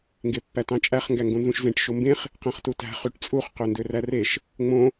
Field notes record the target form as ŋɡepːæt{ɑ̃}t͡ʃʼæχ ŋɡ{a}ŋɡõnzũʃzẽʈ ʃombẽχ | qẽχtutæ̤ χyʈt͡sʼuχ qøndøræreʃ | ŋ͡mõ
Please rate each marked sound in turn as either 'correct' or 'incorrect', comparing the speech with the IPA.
correct, incorrect: æ

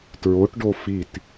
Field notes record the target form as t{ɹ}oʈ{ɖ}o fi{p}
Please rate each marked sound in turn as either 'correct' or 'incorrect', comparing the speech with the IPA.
correct, correct, incorrect: t

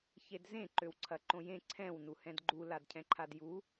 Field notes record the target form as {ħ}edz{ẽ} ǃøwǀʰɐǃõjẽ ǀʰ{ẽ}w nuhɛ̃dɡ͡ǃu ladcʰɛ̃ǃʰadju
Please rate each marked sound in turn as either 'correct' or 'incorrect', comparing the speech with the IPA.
incorrect: ç, correct, incorrect: ɛ̃

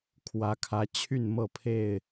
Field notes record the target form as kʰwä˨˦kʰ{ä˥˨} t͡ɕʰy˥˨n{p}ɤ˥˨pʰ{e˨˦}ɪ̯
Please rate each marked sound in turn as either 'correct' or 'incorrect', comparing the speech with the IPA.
incorrect: ä˨˦, incorrect: m, incorrect: e˥˨

